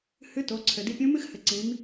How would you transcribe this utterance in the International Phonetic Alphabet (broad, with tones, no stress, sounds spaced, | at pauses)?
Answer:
h ɨ˧˥ t o˩˧ ǀʰ ɘ˩ d i˧ pʲ ũ˧˥ m ɨ˥ x h ɘ˩˧ ǀ ĩ˩˧ m